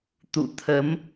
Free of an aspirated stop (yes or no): no